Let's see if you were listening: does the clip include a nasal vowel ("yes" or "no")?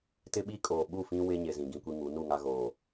yes